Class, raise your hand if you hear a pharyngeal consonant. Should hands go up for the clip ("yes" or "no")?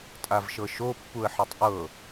yes